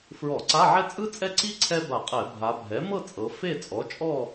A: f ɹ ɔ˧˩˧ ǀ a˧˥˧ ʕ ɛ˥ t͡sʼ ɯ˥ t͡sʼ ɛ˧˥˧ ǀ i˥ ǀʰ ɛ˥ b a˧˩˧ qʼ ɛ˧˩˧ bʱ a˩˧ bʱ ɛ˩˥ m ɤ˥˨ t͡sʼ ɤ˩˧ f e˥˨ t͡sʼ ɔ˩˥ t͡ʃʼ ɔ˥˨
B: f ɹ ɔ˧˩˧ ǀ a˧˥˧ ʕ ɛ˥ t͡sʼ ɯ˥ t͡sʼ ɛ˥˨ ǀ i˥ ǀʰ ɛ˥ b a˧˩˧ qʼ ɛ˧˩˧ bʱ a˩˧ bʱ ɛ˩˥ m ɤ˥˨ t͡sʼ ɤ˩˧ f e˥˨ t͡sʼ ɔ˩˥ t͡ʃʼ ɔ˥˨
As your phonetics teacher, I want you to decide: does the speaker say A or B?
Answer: B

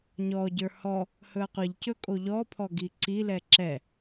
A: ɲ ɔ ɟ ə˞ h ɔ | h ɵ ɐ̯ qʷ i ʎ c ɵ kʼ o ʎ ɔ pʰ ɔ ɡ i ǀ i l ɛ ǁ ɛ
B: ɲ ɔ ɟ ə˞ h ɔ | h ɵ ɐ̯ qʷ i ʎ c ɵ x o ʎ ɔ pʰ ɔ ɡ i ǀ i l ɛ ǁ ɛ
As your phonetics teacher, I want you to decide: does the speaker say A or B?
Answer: A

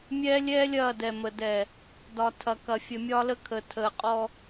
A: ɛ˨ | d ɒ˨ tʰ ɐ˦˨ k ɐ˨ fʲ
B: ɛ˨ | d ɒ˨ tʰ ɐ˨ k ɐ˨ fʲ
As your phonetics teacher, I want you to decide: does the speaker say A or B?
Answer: B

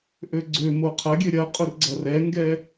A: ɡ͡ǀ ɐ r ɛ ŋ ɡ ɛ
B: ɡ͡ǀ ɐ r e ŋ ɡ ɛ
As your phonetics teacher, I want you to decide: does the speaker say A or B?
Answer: A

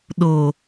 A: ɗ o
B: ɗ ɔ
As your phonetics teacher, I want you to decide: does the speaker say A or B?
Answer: A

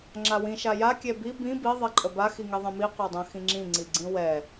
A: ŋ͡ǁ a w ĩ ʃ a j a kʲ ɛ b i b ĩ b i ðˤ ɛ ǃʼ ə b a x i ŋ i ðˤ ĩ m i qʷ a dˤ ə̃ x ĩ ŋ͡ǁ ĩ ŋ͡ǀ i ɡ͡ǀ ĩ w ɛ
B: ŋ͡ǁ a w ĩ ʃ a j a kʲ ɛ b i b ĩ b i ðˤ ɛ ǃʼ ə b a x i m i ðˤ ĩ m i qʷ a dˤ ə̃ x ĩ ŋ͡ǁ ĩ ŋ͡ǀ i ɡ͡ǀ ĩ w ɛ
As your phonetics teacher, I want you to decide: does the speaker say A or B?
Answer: A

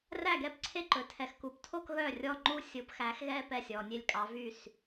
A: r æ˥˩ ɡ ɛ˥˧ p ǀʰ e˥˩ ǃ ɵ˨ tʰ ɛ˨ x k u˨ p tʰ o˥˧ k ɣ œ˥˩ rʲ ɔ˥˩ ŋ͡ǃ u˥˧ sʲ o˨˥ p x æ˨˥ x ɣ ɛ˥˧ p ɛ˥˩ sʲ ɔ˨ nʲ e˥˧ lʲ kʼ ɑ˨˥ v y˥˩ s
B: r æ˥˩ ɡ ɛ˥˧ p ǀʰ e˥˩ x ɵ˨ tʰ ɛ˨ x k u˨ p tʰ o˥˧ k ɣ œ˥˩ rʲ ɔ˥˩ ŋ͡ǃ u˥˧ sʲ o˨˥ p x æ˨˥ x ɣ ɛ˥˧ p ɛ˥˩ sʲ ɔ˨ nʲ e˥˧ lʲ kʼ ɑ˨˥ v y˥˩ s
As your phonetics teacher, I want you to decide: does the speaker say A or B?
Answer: A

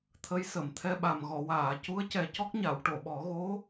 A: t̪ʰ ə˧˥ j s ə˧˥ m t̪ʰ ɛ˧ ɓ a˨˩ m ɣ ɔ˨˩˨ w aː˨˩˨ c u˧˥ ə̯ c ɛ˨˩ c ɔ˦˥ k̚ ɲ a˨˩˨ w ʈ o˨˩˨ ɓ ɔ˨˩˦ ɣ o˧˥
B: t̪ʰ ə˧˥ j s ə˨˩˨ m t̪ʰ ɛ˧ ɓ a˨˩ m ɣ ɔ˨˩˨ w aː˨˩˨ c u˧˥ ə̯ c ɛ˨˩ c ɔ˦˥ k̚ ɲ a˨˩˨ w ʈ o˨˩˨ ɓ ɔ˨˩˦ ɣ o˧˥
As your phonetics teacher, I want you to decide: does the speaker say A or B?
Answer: B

